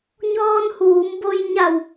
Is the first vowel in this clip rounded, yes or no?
yes